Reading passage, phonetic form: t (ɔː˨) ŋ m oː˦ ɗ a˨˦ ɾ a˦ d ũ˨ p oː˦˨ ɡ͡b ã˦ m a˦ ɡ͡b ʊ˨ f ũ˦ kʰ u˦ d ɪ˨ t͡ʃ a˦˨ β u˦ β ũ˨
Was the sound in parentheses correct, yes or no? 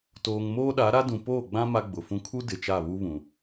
no